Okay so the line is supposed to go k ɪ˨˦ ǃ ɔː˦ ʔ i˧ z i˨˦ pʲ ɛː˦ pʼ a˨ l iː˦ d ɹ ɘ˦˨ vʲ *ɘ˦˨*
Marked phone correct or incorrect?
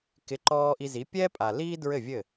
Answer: correct